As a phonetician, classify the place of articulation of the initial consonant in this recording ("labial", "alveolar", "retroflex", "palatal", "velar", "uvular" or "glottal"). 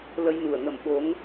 alveolar